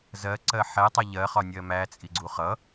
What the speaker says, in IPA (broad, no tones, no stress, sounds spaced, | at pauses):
z ɜ ǀ ɜ ħ ɛ tˤ ɛ ʎ ɜ χ ɒ nʲ ɜ m æ t͡sʼ i ɡ͡ǀ u χ ʌ